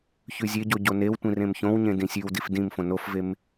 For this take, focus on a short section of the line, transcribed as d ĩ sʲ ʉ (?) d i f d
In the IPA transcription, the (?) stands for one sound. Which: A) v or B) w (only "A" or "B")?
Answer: B